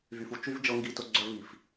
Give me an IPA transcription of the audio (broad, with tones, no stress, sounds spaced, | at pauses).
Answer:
v y˨ f u˨ t͡ʃ y˦ v d͡ʒ ɤ˧ ŋ ɡ i˨ t ʊ˨ ɡ͡ǀ œ˧ v i˨ f